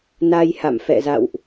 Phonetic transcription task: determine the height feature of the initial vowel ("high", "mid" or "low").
low